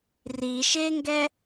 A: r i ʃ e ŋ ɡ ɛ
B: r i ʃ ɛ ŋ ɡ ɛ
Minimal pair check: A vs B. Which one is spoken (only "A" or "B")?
A